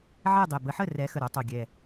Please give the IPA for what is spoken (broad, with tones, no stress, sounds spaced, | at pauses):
ʕ ɛ˥˨ dˤ e˨˩ b ə˨˦ ħ ə˥˨ r ɛ˨˦ x ə˨˩ ɾ o˨˦ tˤ o˨˩ ɡʲ ɛ˨˩